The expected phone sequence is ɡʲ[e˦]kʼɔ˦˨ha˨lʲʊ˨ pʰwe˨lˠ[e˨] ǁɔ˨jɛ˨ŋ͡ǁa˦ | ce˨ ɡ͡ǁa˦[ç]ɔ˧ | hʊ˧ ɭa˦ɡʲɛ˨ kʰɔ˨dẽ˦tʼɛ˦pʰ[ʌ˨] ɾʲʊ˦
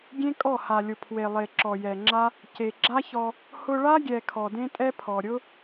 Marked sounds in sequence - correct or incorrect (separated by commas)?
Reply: incorrect, correct, correct, incorrect